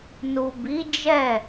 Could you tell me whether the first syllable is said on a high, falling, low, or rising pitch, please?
low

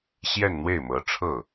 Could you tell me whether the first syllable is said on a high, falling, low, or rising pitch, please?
falling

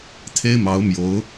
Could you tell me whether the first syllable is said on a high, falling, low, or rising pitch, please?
high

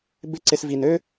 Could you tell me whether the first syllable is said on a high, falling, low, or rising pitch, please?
high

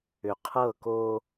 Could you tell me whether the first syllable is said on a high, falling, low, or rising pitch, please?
low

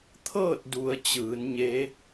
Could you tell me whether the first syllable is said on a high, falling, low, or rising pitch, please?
falling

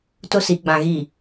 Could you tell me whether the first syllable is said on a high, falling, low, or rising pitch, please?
high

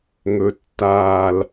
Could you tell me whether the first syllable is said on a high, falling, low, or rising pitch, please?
low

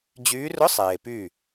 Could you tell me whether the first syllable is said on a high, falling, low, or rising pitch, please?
rising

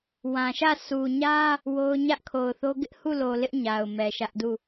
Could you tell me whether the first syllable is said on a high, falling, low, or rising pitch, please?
low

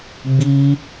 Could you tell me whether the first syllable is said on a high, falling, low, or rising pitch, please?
high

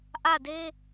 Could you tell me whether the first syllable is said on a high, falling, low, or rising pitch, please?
falling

